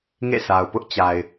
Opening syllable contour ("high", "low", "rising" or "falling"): falling